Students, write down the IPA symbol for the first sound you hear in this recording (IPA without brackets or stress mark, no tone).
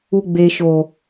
u